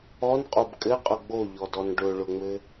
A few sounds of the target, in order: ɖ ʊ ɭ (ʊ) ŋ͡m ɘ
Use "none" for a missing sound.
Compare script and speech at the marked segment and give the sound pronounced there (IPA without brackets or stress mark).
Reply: ʊ